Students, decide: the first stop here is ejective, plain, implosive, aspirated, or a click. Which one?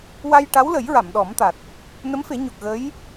plain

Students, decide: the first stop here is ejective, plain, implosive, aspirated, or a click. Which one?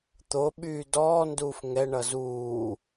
plain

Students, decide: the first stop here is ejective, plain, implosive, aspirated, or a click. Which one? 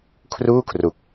aspirated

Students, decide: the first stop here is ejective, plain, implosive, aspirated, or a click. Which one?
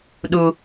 implosive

